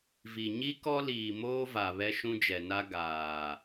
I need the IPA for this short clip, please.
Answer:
v i˨ ɲ i˦ k ɔ˦ l iː˨ m oː˦ v a˨ β ɛ˦ ʃ ũ˦ d͡ʒ ɛ˨ n a˦ ɡ aː˨

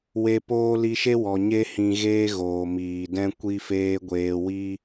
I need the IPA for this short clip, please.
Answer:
w e˧ p oː˦ l i˧ ʃ e˦ w ɔ˨ ɲ e˧ h ĩ˨ ɣ eː˦ ɣ oː˨ m iː˨ d ɛ̃˦ kʷ i˦ f eː˦ ɡʷ eː˧ w i˦

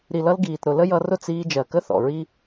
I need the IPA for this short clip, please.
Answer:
ɾ i˨ l ʌ˧ l ɡ iː˨ t ɾ ʊ˨ l ə˦ j ʌ˧ r ʊ˦˨ t͡s iː˧ d͡ʒ ɜ˨ k ə˦ θ ɔ̰˨ ɹ i˦

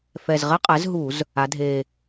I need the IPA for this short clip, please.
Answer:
f ɛ˨˩ z ʁ ɛ˦ qʼ ɛ˩˥ z ɦ u˧˩˧ z | a˩˧ dʱ e˨˩

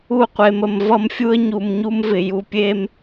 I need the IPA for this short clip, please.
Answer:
u˦˨ qʷ e˨ m ə˨ m v ʌ˦ m fʲ u˦ ə̯ ɲ u˨ m ɲ u˦ m v ɪ˨ j u˨ pʲ e˦ m

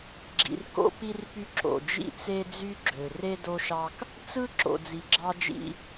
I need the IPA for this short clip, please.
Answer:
ɡ͡ǁ ḭ˨ r k o̰˦ p i˦ r p y˦ ǁ o̰˨ d͡ʒ ḭ˦ t͡s e˦ d͡z y˦ ɡ͡ǁ ø˨ r e˦ d o˦ ʃ ɑ˦ k | t͡s ɯ˦ ǁ o̰˨ d͡z i˨ ɡ͡ǁ ɑ˦ d͡ʒ ḭ˦

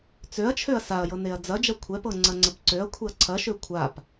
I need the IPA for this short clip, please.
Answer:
t͡s ø ɐ̯ t͡ʃʰ ø ɐ̯ s a ɐ̯ j ɤ n e ɐ̯ d͡z ɐ d͡ʒ ɐ kʷʰ ɛ p ɤ ŋ͡ǀ ɐ ŋ͡ǀ ə p ǀ ø ɐ̯ kʷʰ e ɐ̯ ǀʰ ɐ ʃ ø kʷʰ a p

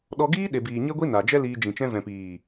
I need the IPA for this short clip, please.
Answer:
ɗ ɔ˧ ɡ iː˦ ɗ e˨ b iː˨ ɲ e˦ ɡʷ i˦ n a˨ d͡ʒ ɛ˦ l iː˧ d͡ʒ ĩ˨ t͡ʃ ɛ̃˧ v ɛ̃˨ p iː˨

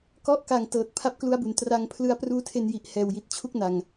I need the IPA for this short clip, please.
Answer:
k ɔ˦˥ ʔ k a˨˩ ŋ t ɤː˨˩ t̚ pʰ a˦˥ p̚ k l u˦˥ a̯ b u˨˩ n t r a˧ ŋ pʰ l ɯ˦˥ a̯ p r uː˦˥ tʰ e˧ n j i˨˩ ʔ h ɛː˨˩ w j i˨˩ t̚ t͡ɕʰ u˥˩ k̚ n a˨˩ ŋ

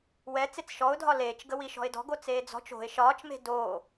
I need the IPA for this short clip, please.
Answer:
w ɛ t͡s e t͡s ʃ ɔ ʊ̯ dʱ ɒ l eː t͡ʃ ɡ ə w i ʃ ɔ̤ ɪ̯ d ɔ̤ ɡ o t͡s eː d͡z ɔ̤ t͡ʃ o̤ ɪ̯ ʃ ɒː t͡ʃ m e̤ d oː

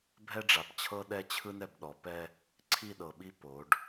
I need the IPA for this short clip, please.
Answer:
bʱ ɛ˦ ɖ͡ʐ a˨ p t͡ɕʰ ɤ˦ ɗ ɛ˦ t͡ɕʰ ɯ˦ n ɛ˨ b ɗ ɔ˨ p ɛ˦ | ǀʰ i˦˨ ɗ ɤ˨ ɓ i˦ p o˨˦ ɖ

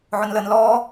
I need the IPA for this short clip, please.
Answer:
ʕ ʊ n l ə n l ɔː

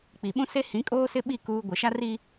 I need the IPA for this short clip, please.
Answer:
k͡p i˨ ɓ ũ˦ s e˦ h ĩ˨˦ kʼ oː˦ s ɪ˦ ɓ i˦˨ k uː˦ ɡʷ ɪ˨ ʃ a˦ r i˦

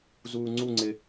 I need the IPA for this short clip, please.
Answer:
z uː ŋ͡ǀ u ŋ͡ǀ ɪ

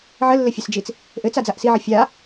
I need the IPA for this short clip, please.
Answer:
ʕ ə lː ɘ fʲ ɘ s d͡ʒ i t͡s | ʔ ɘ t͡s a d͡z a ʔ s i ʕ ə fʲ a

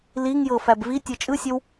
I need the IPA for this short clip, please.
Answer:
l i ŋ j ɤ f æ b v i tʲ ɤ t͡ʃʼ ɯ sʲ ɘ w

